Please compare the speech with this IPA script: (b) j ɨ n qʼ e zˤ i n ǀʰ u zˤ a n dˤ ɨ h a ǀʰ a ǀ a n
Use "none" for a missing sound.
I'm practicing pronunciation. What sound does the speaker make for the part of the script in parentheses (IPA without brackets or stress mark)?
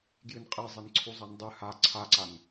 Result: ɡ